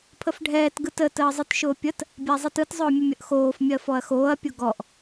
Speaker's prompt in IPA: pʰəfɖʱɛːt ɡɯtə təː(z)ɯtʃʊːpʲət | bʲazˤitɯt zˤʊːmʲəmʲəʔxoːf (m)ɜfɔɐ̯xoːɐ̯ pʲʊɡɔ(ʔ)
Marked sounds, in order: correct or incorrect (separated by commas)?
incorrect, incorrect, correct